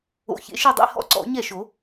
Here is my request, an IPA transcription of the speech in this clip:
o̰˨˥ çḛ˨˥ʃe˥˧dˤḛ˥˧ hɔ̰˥˩ǀɔ̰˨˩˦ɲɛ˥˩ʃo˨˩˦

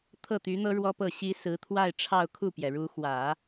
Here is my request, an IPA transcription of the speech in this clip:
t̪ʰɤ˥˩t̪y˧˥n̪ɤ˥ ɻwɔ˥pɤ˥˩ ɕi˥ sɹ̩˧˥t̪ʰwa˥˧ɪ̯ ʈ͡ʂʰɑ˥˧ʊ̯kʰu˥˩pjɛ˩ɻu˧˥ xwä˨˩˦

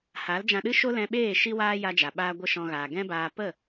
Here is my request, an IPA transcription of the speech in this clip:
ha˨˦ld͡ʒã˧ɗɨ˦ ʃo˦lɛ̃˧ɓeː˦˨ ʃi˦waː˦ ja˧d͡ʒa˨ɓaː˧ ɡʷə˦˨ʃɔ̃˧ ɣaː˨ɡɛ̃˦baː˧ pə˦˨

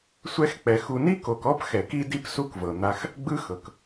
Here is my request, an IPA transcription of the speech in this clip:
sʷɛ˦xk͡pɛ˨ xu˨ni˦ko˨kɔ˦p xɛ˨k i˦di˦p su˦kvɤ˨n̪a˦x | ɡ͡bɯ˦xɤ˨k

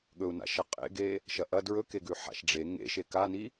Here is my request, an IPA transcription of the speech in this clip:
ɠɵu̯na̰ʃɐ qʼḛɡe | ʃɐʔɐ dɹɵkeɡʉ ħa̰ʃɖ͡ʐe ŋḛʃe kani

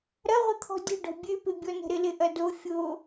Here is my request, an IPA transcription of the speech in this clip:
ɾɐʁʷət̪ʰɔ̤ dʲə̤ɖɔ̤ bʲøpɪbʲɔnə̤ ɾɪlɪʔɐdo fʲo

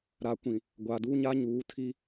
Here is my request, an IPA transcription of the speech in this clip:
ɾa˨kʷĩ˨ | ɡʷaː˨duː˦ɲa˦ ɲuː˨˦tʰi˦

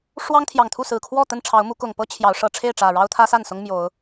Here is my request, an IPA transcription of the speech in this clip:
ʂwɑ˦ŋt̪ʰjɑ˨˩ŋt̪ʰu˥˨ sɹ̩˨˩kʰwɔ˥˨ t̪ə˥˨nʈ͡ʂʰɑ˨˦ʊ̯mu˨˦kʊ˨˩ŋ pɤ˦ t͡ɕʰjɑ˨˦ʊ̯ ʂɤ˨˩ʈ͡ʂʰe˥˨ɪ̯ʈ͡ʂä˨˩ ɻɑ˦ʊ̯t̪ʰä˦sa˥˨nsʊ˦ŋ mjo˨˦ʊ̯

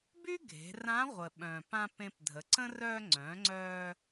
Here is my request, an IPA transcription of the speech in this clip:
by˥ɡʱe̤˩˧ rã˧˥ʁʷə˩ ɓœ̃˩pã˧ pẽ˧pdʱə˩˧ǀə̃˥ rœ˧ŋ͡ǀœ̃˩˧ŋ͡ǀœ˧

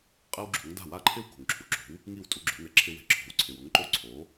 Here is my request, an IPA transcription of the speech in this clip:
qʼe˥wɡ͡ǁo̤˩˥ŋ da̤˥˩wa˥˩ǃʰɪ˥w ko̤˩ŋǁʰu˩ǁo̤˩˥w | ŋi˥˩wtʼu˧ɡ͡ǁo̤˩˥nɛ˩ ǁʰɪ˧we̤˩˥ǁʰo̤˩˥wǀʰɪ˩w ʊ˩˥ŋǃo˧ ǀʰo˩˥

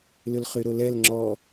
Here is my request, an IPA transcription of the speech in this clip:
lʏlχyɾolɛl ŋ͡ǁɔ

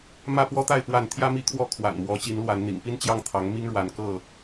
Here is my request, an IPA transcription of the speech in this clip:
mä˥˨pwɔ˦t̪a˥˨ɪ̯ pwa˥˨n t̪ʰjä˦mi˦kʰwɔ˥˨ kʰwa̰˨˩nmwɔ˨˦t͡ɕi˨˦nlwa˨˦n n̪ḭ˨˩ŋpi˦nt͡ɕjɑ˥˨ŋ t̪ʰɑ˨˦ŋ mi˦ŋɻwa˨˦nkɤ˥˨

